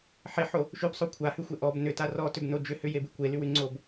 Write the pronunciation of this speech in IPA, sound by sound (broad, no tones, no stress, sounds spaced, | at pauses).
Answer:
ħ e ħ o | ʃ ʉ b sˤ o kʷʰ a h ʉ xʷ e ʔ ɔ b n ʏ t a r ɔ t ʏ b n o d͡ʒ ʏ h ʏ j e b y kʷ e l y w y ŋ͡ǀ o b